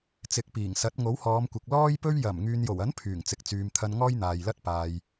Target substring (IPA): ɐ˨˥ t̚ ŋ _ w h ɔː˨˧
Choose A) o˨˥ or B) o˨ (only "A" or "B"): A